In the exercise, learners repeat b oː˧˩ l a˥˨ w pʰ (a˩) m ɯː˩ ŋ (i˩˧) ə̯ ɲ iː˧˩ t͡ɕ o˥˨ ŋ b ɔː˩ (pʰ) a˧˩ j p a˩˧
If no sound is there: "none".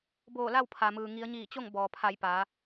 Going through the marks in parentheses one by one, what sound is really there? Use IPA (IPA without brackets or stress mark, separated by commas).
a˩, i˩˧, pʰ